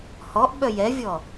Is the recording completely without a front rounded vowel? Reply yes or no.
no